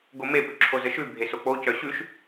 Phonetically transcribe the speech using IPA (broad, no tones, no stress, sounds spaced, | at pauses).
ɡ o m e p ʉ ǁʰ o z ə ʃ ʉ bʱ e s o k͡p o c œ ɕ ʉ ʃ